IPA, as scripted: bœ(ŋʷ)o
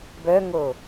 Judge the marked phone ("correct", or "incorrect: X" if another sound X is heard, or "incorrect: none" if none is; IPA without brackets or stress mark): incorrect: ŋ